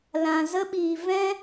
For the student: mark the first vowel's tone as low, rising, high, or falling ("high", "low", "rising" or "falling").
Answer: low